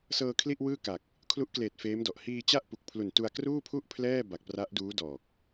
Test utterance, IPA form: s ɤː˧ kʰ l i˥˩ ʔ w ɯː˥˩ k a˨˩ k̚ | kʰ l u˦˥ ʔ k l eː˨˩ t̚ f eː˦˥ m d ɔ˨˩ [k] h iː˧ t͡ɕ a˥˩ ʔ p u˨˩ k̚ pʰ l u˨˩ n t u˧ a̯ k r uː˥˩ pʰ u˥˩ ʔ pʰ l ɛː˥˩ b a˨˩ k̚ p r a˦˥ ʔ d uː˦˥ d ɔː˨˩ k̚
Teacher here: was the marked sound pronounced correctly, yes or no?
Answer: no